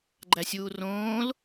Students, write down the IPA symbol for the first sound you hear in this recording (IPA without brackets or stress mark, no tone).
ɡ͡ǃ